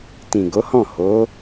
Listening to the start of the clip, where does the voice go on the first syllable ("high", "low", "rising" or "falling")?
low